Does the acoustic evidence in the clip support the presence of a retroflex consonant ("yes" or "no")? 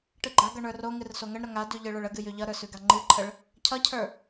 yes